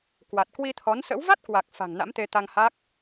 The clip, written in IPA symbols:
kwa˨˩t̚kwi˧t̪ʰɔ˨˦nsə̰˧˥w va˦˥t̚kwa˨˩k̚ fa̤˨˩ŋna̰˧˥mt̪e˧ t̪a˧ŋha˦˥k̚

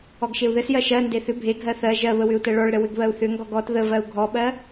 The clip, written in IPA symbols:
ɔɡʃeu̯ðɘsjɜ ʃɜnde θʏ bʱeɡʱɜ θɜ ʒɜβə wʏu̯tɜɭɔɭɾə wʏɡβɜu̯θʏŋɡɔɡ ɔt ðə vɜu̯ɡʱɔɓɜ

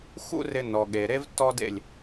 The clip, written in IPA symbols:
xṵ˦ rɪ˧nɔ˨ɠe˨ ɾe˦vtːɔ˦dḛ˦˨lʲ

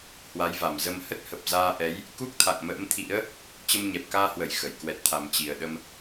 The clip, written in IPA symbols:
hwa˨˦jva˨˩mzə˧m hə˦˥t̚ hə˨˩p̚zaː˧ʔɛ˨˦j | ku˦˥k̚t̪ʰa̰˧˨ŋmə̰ː˧˥mt̪ʰḭ˧˥ə̯ | t͡ɕə˧mɲɛ˨˩p̚kaː˧hwə˧˩j xə˧˩j kwɛ˨˩t̚t̪ʰa˨˩mt͡ɕi˨˩ə̯ɗə˧m

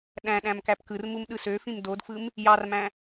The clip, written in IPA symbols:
ɗæ̃ ɗæ̃mkæpkɯrmum ɗɯsøfĩm dodfɯm | jɑrmæ̃

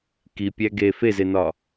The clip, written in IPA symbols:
kipʲæ ɡe fezenɒ

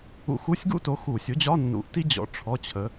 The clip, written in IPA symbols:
ṵ˧xu˧˥˧sʲɡṵ˥to˨˥ xu˧˩˧sʲo˨˥d͡ʑɒ˧˥˧ nːṵ˨˥ʔ ti˥d͡ʑɔ̰˨˥ ʈ͡ʂʰɔ˧˥˧t͡ɕʰə˨˥

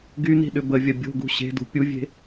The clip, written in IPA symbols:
ɡyni̤ ɗʏbəvʲɐ bʲo̤ɡṳ ɕe̤dṳ pʲuvʲe̤

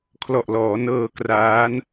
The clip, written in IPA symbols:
kʰlɔ˨˩ʔlɔː˩˦ nɤː˧kraː˦˥n

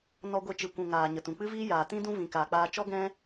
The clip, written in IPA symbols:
nɔ˧ɡʷe˧t͡ʃɨ˨kʷũ˨ ŋaː˨ ɲə˨tũ˨k͡pɨ˦viː˦ jaː˨tĩ˦dũ˦ vĩ˨ kaː˨k͡paː˧ t͡ʃɔ˦ɡɛ̃˦

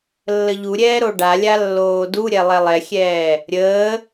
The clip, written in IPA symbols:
lːəʎuɾʲɛː ɾoɖalʲa lːoːduɾʲɛ lˠɛlˠɛxʲɛː | ɾʲəː

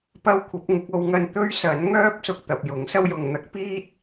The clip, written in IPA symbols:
pɐ˥wkʷʰɐ˨˥p̚ŋɪ˨˥k̚ o˨˧wŋɐ˧n t̪ɵ˥ɥsɐ˨˥n ŋœː˥p̚sʊ˨k̚ t̪ɐ˨p̚jʊ˨˥ŋsɐ˥wjʊ˨ŋ n̪ɐ˥k̚piː˥t̚

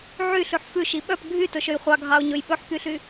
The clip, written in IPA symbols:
ʕyɬʉħ fʉʃi ɓœp ɡʱytɵʃøj χʷɑɡʱɑʊ̯ɲɵj ɓɵħkyɬy

